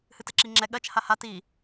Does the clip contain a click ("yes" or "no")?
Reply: yes